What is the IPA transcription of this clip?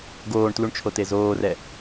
ɡ oː ɳ t l u ɳ t͡ʃʰ o t e z oː r ɛ

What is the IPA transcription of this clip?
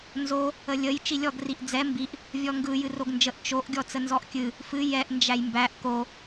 n z o | ə lʲ ə j t͡ʃ i lʲ ɔ ɡ r i ʔ d͡z ɛ m b i ʔ | vʲ ɔ ŋ ɡ ɯ j ɨ r o ɡ n d͡ʒ ə ʔ t͡ʃ o ʔ ɡʲ ɔ t͡s ə n z ɔ ʔ kʲ ɨ | f ɨ j ɛ ʔ n d͡ʒ æ j m b æ ʔ k o

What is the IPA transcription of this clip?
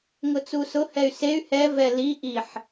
ŋ ʊ t͡s u s ʊ h ɛ y̯ s e y̯ h ɛ v ɛ l i ʔ i ħ

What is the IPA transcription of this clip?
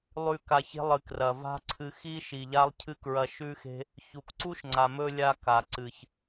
lˠ ʉ˦˨ k a˧ ç e̤˦ lˠ ɨ˨ k r ɐ˨ v a̤˦ ǀʰ ɨ˧ x i˦ ʃ i˨ ʎ a˦ lˠ cʰ ɨ˦ k ɹ ɐ˧ ʃ ʉ˦ x e̤˦ | ç u˨ k ǀ u˦ ʃ ŋ͡ǀ a˨ m ɵ˧ lʲ a˧ k a˨ ǀ ɨ˨ ç

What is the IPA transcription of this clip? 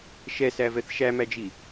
ʃ ɛ s æ v ɛ θ ʃ æ m æ d͡ʒ i

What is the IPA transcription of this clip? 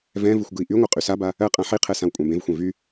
v ɛ̃ v ɯ xʷ ɡ ɯ i̯ ʔ y ŋʷ ɯ qʼ y s a b a | ɜ qʼ ã ħ i qʰ ɛ s ã w kʷʼ ã b ẽ v xʷ ɛ̃ v y

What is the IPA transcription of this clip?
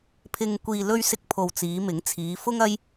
pʰ ɪ˧ ŋ kʷ iː˧ l ɵ˧ ɥ s ɪ˧ k̚ pʰ o˨ w t͡s iː˨˧ m ɪ˨˥ ŋ t͡sʰ iː˨˧ f ʊ˥ ŋ ɐ˥ j

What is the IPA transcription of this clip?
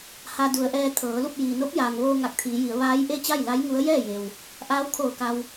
h a˧ d u˩˧ ə̯ ʔ ɛː˧ t̪ʰ ɤː˩˧ l u˥˨ p̚ j iː˩ n o˧˥ p̚ j aː˩ ŋ ʋ oː˧ ŋ a˧˩ k̚ t̪ʰ iː˩˧ j i˩˧ ə̯ ʋ aː˧˥ j ʔ e˥˨ t͡ɕ a˥˨ j l a˧˥ j ŋ u˧˥ ə̯ j ɛː˥˨ j e˩ w | ʔ aː˧˥ w kʰ oː˧˩ k a˧ w

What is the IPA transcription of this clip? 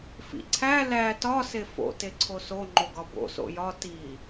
f ḭ ǀʰ æ l æ t ɒ s e f o̰ t e ǀʰ o s o ŋ͡ǃ o ɡ ɒ b o̰ s o̰ j ɒ t i

